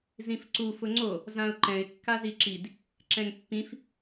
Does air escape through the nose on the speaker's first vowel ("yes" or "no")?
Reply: yes